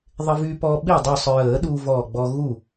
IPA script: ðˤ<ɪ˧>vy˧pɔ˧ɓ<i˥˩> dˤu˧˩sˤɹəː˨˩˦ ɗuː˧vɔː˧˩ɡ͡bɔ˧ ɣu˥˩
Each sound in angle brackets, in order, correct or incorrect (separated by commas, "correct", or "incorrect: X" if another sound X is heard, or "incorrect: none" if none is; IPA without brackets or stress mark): correct, correct